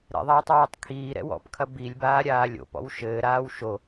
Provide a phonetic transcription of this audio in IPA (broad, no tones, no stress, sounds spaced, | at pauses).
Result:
ɾ ɛ̰ ðˤ aː tˤ w iː tˤ kʰ iː ɾ ɛ̰ w ɔ̰ p kʰ ɐ b i lʲ b aː ɾʲ aː lʲ o̰ p ɔ̰ w ʃ ɘː ɾ aː w ʃ o